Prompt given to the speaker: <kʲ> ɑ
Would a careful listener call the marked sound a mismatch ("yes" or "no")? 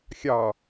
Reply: yes